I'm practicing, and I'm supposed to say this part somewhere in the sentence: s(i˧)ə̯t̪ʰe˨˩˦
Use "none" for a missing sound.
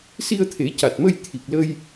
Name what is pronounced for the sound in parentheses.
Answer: i˧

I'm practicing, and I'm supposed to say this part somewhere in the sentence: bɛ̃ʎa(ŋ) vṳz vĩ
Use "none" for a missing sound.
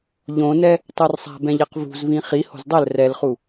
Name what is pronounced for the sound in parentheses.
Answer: q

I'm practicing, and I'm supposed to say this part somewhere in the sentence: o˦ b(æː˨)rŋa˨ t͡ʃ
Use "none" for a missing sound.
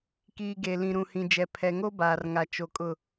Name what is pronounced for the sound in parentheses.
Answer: aː˨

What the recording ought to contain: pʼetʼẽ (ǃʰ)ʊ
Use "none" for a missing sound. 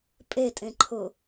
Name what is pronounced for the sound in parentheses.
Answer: ǃʰ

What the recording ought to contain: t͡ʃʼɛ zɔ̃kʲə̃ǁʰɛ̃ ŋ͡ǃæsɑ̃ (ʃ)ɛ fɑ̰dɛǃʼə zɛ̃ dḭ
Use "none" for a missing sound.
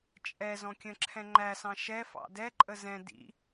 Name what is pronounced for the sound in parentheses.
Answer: ʃ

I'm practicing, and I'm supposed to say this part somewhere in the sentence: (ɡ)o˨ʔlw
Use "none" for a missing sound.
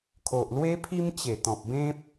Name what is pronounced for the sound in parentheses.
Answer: kʰ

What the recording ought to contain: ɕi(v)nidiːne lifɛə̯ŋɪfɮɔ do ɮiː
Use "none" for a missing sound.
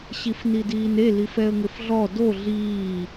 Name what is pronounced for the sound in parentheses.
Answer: f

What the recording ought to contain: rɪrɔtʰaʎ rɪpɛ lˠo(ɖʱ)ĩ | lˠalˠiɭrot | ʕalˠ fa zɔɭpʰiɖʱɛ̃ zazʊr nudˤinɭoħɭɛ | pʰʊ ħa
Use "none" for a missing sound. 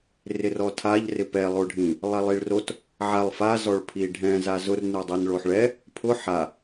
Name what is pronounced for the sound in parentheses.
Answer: ɖʱ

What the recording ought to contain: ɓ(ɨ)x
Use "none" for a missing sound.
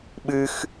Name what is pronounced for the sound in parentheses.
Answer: ɨ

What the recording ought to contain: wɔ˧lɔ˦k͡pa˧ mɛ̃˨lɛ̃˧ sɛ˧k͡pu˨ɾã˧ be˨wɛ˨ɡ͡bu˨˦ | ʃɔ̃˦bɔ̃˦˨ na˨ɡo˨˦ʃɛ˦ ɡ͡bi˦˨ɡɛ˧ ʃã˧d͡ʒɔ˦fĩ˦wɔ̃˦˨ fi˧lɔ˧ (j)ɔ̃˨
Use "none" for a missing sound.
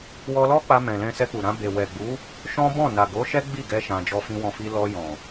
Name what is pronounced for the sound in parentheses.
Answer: j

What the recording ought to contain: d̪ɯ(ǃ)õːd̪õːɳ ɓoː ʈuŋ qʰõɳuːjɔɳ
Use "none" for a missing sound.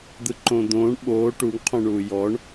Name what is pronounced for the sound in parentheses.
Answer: ǃ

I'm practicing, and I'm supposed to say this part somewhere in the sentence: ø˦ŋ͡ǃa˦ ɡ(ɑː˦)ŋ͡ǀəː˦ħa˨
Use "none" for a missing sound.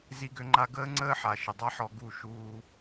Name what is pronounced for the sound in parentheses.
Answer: əː˦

